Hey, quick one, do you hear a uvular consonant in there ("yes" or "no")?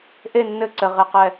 yes